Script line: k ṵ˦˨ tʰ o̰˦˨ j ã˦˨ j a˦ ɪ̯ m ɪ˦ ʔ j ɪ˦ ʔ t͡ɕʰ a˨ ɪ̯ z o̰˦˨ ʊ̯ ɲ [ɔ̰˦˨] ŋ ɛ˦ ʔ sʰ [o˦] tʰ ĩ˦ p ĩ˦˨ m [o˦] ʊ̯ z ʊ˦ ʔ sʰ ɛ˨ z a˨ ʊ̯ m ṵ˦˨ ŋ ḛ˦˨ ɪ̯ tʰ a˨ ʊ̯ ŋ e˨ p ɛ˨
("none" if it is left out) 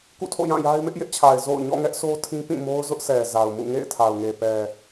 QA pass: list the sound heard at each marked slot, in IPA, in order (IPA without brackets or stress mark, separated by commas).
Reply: ɔ̰˦˨, o˦, o˦